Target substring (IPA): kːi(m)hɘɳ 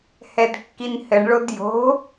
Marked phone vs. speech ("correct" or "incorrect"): incorrect